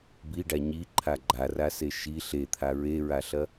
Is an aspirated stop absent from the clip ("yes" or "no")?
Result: no